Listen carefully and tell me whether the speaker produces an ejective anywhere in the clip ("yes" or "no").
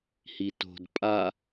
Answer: yes